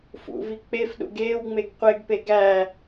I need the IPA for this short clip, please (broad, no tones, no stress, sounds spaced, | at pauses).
f ṵ v i k͡p e f ɗ ṵ ɡ eː w ŋ͡m e ɡ qʷ e ɡ p e ɡ æ